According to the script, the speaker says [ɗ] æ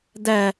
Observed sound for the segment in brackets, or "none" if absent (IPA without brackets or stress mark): d